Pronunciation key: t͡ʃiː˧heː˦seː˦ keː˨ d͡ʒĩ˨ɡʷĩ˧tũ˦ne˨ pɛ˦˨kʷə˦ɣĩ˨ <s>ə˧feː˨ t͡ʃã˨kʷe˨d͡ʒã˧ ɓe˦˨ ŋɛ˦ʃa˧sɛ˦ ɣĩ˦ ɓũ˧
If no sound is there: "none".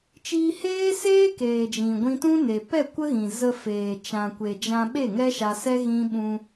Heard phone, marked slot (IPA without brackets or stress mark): z